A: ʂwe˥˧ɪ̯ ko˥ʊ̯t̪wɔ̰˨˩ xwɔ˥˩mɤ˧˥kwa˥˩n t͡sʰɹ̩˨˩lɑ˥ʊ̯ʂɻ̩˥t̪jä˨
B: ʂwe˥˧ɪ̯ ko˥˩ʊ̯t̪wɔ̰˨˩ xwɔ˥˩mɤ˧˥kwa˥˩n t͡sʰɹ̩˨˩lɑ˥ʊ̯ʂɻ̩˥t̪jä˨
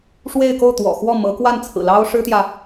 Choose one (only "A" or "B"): B